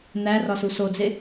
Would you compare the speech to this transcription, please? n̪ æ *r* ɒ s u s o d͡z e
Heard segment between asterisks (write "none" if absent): r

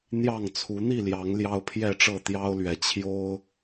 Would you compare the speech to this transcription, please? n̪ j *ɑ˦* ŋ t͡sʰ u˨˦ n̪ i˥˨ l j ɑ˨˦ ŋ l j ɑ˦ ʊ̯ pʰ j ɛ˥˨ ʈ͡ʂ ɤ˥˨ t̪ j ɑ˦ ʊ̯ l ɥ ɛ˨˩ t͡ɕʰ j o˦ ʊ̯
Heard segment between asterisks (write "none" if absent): ɑ˥˨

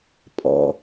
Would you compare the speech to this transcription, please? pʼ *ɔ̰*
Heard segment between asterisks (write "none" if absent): ɔ̰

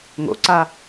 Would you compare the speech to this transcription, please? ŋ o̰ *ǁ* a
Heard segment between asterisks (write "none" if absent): ǀ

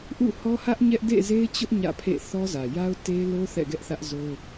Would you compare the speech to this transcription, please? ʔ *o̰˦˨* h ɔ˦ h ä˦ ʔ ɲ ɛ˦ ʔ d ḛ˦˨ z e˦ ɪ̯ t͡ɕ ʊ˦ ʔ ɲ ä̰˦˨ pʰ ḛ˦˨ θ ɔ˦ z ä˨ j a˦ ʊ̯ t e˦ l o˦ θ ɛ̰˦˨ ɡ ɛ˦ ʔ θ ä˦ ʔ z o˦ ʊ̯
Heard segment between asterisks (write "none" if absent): ṵ˦˨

